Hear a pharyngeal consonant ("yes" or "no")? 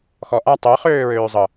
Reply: no